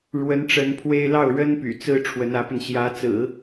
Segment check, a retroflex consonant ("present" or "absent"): present